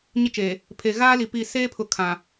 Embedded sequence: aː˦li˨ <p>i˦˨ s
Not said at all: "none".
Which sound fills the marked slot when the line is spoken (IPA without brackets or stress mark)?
p